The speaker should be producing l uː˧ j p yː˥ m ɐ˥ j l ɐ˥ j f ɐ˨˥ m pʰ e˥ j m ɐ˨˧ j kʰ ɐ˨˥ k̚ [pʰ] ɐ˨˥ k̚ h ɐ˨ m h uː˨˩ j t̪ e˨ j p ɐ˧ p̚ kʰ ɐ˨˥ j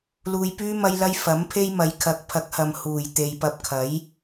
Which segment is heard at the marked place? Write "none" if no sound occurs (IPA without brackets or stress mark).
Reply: pʰ